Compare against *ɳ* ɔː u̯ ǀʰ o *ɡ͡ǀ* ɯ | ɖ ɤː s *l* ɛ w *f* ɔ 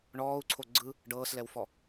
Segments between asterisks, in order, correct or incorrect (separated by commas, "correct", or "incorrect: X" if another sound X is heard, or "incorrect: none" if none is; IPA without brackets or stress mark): correct, correct, correct, correct